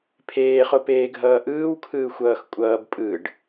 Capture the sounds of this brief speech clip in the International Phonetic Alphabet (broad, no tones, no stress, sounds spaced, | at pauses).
pʰ eː χ o p eː ɡʱ ʌː ʔ ɯː w kʰ ɯː xʷ ʌː x kʷʼ ʌː b pʼ ɯ ɖ